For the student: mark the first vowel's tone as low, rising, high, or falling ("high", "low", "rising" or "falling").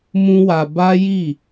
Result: high